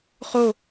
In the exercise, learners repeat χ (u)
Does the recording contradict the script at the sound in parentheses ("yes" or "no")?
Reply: yes